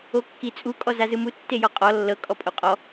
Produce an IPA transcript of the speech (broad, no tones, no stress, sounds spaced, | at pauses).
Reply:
o kː i t͡sʼ u kʼ ɔ z a z ɯ m u tː e j ɔ qʼ ɔ lː ɤ kʼ ɔ pʼ o qʼ ɔ